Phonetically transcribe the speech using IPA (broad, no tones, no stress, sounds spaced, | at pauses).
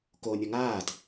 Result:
k o nʲ ɔ ŋ aː t